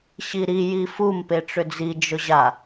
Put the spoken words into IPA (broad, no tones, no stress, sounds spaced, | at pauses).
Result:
ɕ i ɾ i j i f u m p e ʈ͡ʂ ʏ d͡z i d͡ʒ ʊ ʑ a